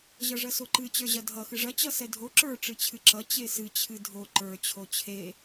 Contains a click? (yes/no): yes